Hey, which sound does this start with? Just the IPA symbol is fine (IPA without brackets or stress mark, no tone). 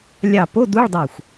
lʲ